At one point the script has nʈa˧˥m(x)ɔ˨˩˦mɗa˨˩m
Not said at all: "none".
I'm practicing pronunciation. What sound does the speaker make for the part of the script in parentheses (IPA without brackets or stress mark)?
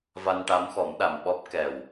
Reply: x